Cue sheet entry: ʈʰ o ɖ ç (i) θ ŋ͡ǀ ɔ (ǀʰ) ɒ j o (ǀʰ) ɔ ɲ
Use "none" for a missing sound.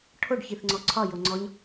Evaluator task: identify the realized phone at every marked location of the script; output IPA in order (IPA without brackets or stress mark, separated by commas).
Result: i, ǀʰ, ŋ͡ǀ